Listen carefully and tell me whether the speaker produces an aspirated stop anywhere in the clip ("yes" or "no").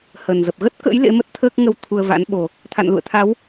yes